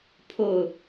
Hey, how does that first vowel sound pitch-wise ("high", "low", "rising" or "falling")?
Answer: low